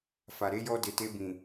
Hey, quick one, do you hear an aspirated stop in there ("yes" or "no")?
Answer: no